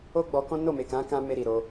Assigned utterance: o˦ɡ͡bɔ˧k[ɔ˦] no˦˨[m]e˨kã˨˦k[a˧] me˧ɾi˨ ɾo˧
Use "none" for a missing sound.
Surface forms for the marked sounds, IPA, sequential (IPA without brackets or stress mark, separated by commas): ɔ̃˦, m, ã˧